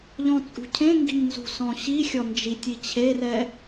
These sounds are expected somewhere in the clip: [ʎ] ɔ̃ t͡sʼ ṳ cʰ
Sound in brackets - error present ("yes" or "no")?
no